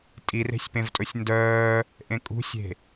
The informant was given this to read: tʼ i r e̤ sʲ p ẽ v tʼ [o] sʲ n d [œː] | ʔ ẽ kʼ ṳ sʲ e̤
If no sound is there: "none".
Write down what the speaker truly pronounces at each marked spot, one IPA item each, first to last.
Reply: ɵ, œː

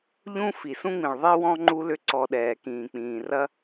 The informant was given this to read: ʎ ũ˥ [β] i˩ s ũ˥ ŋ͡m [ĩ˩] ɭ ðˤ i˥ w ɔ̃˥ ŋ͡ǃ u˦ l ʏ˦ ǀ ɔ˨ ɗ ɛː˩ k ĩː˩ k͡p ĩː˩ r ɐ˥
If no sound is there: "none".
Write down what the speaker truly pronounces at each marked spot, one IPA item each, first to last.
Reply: f, ĩ˩

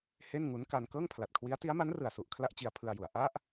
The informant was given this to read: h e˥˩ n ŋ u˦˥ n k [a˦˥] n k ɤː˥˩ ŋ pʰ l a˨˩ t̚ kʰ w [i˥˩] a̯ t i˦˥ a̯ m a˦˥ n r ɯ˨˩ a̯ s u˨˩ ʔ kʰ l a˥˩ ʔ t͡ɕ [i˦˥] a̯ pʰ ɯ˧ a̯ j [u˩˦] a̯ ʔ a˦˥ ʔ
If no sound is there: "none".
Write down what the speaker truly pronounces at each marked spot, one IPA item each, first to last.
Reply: a˧, i˦˥, i˧, u˩˦

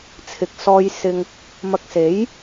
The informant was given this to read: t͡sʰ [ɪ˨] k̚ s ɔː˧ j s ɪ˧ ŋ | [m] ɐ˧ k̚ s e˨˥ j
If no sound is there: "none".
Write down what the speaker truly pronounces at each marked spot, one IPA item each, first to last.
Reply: ɪ˨, m

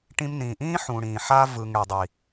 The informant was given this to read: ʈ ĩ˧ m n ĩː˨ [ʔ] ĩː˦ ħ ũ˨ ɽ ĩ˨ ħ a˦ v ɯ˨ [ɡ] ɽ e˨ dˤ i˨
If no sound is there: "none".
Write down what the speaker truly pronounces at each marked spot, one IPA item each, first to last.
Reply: ʔ, ŋ

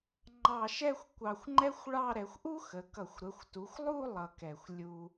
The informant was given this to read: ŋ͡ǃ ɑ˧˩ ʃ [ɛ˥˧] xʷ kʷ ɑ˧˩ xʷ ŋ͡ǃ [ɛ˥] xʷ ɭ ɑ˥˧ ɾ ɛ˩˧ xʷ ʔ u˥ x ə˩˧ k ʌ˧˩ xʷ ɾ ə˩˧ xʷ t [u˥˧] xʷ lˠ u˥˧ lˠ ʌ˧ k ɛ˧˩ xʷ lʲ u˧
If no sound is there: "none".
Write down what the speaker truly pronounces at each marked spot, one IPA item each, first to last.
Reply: ɛ˥˧, ɛ˥, u˩˧

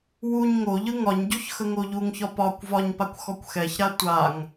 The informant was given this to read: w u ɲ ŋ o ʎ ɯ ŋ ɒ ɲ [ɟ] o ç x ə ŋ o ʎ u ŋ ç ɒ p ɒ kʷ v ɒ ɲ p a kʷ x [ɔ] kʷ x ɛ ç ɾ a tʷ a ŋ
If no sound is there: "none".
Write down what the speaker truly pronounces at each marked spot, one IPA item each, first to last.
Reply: ɟ, ɔ

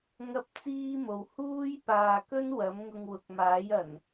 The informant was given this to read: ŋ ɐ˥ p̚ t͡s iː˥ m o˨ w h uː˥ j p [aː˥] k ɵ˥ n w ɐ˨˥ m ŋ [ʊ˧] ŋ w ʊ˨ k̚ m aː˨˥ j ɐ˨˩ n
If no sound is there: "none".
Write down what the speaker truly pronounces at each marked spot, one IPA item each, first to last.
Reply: aː˨, ʊ˧

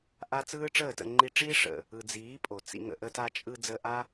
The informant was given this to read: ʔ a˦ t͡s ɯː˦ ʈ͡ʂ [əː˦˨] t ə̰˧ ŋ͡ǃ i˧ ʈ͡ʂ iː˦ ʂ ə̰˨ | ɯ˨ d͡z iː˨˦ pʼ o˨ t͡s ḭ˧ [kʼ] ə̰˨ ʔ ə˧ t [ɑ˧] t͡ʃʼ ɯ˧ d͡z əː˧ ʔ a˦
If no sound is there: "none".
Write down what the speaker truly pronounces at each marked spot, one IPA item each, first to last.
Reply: əː˦˨, ŋ, a˧

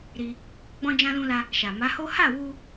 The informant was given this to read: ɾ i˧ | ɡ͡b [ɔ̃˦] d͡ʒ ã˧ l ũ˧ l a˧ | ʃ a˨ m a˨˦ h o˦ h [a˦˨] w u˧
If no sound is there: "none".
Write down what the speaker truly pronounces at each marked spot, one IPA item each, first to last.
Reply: ɔ̃˧, a˦˨

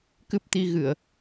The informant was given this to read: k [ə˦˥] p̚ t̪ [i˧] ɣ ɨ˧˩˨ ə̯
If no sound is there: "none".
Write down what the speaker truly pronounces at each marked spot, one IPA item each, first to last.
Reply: ɨ˦˥, i˧

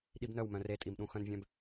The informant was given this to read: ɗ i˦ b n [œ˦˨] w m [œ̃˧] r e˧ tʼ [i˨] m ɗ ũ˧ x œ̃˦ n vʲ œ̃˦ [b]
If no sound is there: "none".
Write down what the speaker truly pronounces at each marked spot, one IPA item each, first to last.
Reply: œ˦˨, œ̃˧, i˨, b

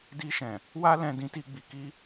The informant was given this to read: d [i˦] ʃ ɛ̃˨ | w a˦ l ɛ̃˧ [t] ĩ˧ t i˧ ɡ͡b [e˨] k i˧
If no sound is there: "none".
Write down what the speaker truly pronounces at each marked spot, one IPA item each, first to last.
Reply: i˧, d, i˨

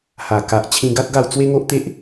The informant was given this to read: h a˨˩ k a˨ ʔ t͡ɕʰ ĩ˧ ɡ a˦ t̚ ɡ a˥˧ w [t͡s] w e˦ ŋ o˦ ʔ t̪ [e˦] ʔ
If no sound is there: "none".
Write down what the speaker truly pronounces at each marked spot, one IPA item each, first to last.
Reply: t͡s, e˦

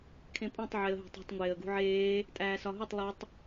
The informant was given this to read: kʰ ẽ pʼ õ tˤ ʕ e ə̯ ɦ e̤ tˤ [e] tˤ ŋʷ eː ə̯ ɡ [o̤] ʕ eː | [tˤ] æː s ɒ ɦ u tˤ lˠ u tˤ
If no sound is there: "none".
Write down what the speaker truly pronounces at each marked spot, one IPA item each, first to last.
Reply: e̤, ṳ, tʼ

